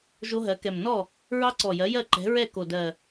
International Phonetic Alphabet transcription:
ʒ o˦˥ ɦ ɜ˩˥ k ɛ˨˩ m n ɔ˥˩ | ɹ ɑ˦˥ ǀ ɔ˨˩ j ɜ˩˥ j ɜ˥˩ ǃ ɛ̤˩˥ ɹ ɛ˥˩ k o˨˩ d ɜ˨˩

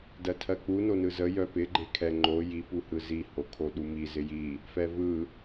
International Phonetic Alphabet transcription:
d ɜ tʰ ɜ k͡p u n o n ɯ z ə j œ p ɪ ɡ͡ǃ e kʰ ɛ ŋ͡ǃ o j i p u h ɯ z i h o kʰ o ɗ u m i z ɪ j i | f ɛ v ɯ

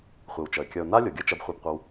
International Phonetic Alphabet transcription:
χʷ e˨ w t͡ʃ ʌ˨ ɪ̯ kʲ ʌ˨ ʊ̯ n a˦ lʲ o˨ ɡʲ ʌ˦ t͡ʃ ɐ˧ b χʷ ɛ˧ b qʷ ɐ˧ w

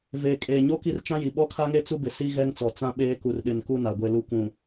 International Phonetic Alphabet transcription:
v eː˨ kʼ eː˨ ɲ o˦ k i˦ r t͡ʃ ã˦ j i˨ ɓ ɔ˦ kʰ a˦ ŋ e˦ t͡s u˦ b ɪ˨ s i˦ ɣ ɛ˦ ŋ t͡s ɔ˨ t͡s ã˦ ɓ eː˦ k u˨ r ɗ ɪ˨ n k u˦ n a˨ ɡʷ e˨ l u˨˦ kʷ ũ˨

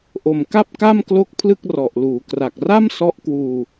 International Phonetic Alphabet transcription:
ʔ o˨˩ m k a˥˩ p̚ k a˥˩ m k l o˦˥ k̚ pʰ l ɯ˥˩ k̚ r ɔ˨˩ ʔ l uː˩˦ k r a˨˩ k̚ r a˥˩ m s ɔ˦˥ ʔ k w uː˧

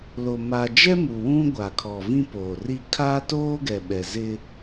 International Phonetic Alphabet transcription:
l o˨ m aː˨ d͡ʒ ɛ˦ m u˨ w ũ˦ ɡʷ a˨ kʰ ɔ˨ v ĩ˦ p oː˨ r i˦ kʰ a˦ t oː˦ ɡ ɛ˨ ɓ ɛ˨ z ɪ˦

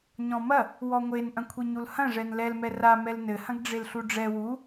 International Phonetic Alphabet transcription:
ɲ ɔ̃ m ɐ | w ɔ ŋʷ e n ʔ ɐ̃ kʷʰ i ɲ u l h ɐ̃ ʐ ɛ n l ɛ l m ɛ r a m ɛ l n ɘ h ɐ̃ ɡ ɖ͡ʐ e l ɬ u ɖ͡ʐ ɛ w u

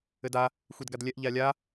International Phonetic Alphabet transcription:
ɘ d a | xʷ i d ɡ a d lʲ ɛ ʔ ʎ a lʲ a

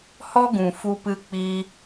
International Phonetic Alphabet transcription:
h ɔ˦ ɡ ũ˨ f u˧ p ɨ˧ k͡p iː˦

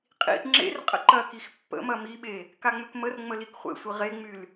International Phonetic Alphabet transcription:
qʼ ḭ ʔ ŋ͡ǁ ḛ r qʼ ə̰ ǃ ɐ k i x pː ə̰ m ɐ m i ɓ e | k a ŋ͡m ʏ k m ə r ŋ͡m ə l i k χʷ ḛ sʷ i ʁ e ŋ͡m y l

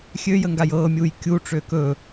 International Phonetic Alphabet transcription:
xʲ ø j ə ŋ ɡ a j ɤː mʲ uː j kʲ u ʈ͡ʂ ø k ɵ

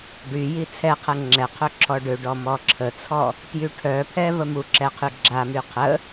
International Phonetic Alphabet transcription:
ɖ y j i t͡sʰ ɛ qʰ ɛ ŋ͡ǁ ɛ qʰ ø ǁʰ ɔ ɖ ø ɖ ɔ m ɔ ǁʰ ə t͡sʰ ɔ | t j y ʈʰ œ pʰ ɛ v ə m u ǁ ɛ qʰ y ɡ͡ǁ a m y qʰ ə

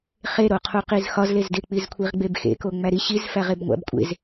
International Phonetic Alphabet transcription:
χ e ɾ o qʰ u q i z x ɒ z l e z d e k͡p i z kʷʰ i ʁ ɡ͡b e b x ḛ k o ŋ͡m æ ɾ i ɕ i z f æ ʁ e b ŋʷ æ̰ b kʷʼ ḛ z

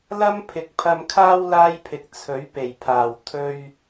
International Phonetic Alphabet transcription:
l ɐ˥ m pʰ ɪ˨ k̚ pʰ ɐ˧ m kʰ aː˥ w l aː˥ j pʰ ɪ˨ k̚ t͡sʰ ɵ˨˥ ɥ p e˨˩ j pʰ aː˨˩ w t̪ʰ ɵ˧ ɥ

